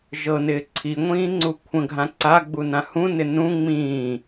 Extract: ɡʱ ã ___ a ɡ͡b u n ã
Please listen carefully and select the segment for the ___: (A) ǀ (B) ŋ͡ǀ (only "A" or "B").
A